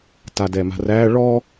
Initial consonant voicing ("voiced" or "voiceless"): voiceless